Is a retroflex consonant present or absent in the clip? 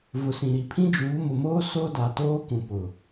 absent